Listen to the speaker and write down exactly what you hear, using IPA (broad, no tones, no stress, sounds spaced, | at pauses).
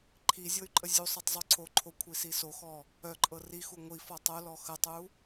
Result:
ǃʰ i zʲ ɤ y̯ ǃʼ ə zʲ u sˤ ɤ tˤ zˤ u ǀʰ o ǃʰ o kʷʰ i s i s o x ɔ | œ ǃʼ ɤ r i x u ŋʷ i f ɔ tˤ o l ɔ x ə tˤ u